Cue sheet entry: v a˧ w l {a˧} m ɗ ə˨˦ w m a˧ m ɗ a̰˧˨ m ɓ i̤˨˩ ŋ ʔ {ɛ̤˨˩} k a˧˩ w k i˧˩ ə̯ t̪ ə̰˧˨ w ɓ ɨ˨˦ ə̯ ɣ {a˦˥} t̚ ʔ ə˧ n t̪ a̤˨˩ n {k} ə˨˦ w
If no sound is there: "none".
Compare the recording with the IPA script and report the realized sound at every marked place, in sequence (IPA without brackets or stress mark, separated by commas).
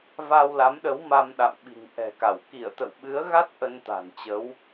a˨˦, ɛ̤˨˩, a˦˥, t͡ɕ